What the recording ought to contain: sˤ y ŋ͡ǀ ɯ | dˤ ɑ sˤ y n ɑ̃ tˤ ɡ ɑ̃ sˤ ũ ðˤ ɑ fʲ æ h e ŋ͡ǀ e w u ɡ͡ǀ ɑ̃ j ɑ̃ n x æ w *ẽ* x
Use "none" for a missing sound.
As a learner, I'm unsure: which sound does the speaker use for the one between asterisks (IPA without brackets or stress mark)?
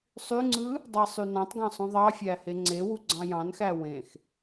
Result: ẽ